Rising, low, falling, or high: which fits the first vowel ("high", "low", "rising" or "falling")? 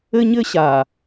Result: high